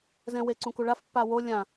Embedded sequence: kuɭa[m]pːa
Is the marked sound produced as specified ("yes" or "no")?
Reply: no